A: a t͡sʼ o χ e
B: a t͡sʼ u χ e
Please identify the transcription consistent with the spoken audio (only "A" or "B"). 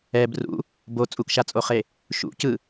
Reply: A